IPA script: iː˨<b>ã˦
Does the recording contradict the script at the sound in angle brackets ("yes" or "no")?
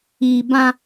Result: no